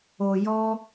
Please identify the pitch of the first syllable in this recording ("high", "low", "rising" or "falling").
low